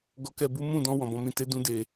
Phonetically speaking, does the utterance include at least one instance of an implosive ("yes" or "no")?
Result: no